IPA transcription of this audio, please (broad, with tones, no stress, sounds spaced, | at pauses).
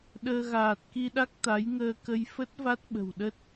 ɗ əː˧ ɣ aː˨˩ t̚ k i˧ ɗ a˦˥ k̚ t̪ a˨˦ j ŋ əː˧ k ə˧ j f ə˦˥ t̚ v a˦˥ t̚ ɓ ə̤˨˩ w ɗ ə˦˥ t̚